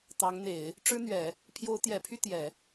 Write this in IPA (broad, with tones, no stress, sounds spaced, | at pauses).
t̪ ɑ˧˥ ŋ n̪ e˨˩˦ ɪ̯ | ʈ͡ʂ ɻ̩˥ n̪ ɥ ɛ˨˩˦ | pʰ j o˧˥ ʊ̯ t̪ j ɛ˨˩ pʰ y˥˩ t̪ j ɛ˨˩˦